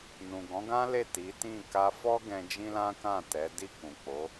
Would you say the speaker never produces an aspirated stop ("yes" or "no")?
yes